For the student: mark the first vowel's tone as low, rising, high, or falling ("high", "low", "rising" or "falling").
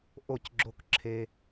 falling